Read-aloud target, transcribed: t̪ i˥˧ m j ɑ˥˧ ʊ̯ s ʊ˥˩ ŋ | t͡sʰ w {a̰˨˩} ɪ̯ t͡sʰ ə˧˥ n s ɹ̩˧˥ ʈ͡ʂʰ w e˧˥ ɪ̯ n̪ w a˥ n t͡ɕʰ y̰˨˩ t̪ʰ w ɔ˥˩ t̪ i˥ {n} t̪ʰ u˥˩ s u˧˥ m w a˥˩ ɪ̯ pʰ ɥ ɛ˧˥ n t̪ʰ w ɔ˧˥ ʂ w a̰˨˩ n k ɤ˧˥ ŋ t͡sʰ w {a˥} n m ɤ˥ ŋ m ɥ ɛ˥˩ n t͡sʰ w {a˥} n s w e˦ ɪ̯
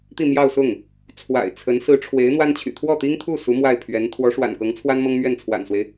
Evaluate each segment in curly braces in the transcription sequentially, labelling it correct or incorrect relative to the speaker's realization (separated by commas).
correct, incorrect, correct, incorrect